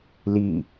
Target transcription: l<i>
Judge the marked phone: correct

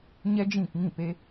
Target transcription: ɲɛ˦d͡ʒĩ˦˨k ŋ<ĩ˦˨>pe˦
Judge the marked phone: correct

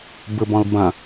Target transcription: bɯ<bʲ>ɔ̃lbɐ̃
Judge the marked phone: incorrect: b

